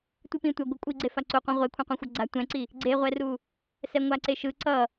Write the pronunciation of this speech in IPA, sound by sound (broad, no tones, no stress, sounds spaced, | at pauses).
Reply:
tʷ ɯ p ĩ tʷ ʌ ɡʷ ɯ kʷʼ i ɡ͡ǀ e f a ǀ u qʷ ã ʁʷ e kʷʰ ĩ qʷ ɛ̃ xʷ ʌ ɡ͡ǀ a tʷ ɛ̃ ǀ i | ɡ͡ǀ e ʁʷ ɛ r u | s ɛ ŋʷ a ǀ e ʃ ɯ ǀ ʌ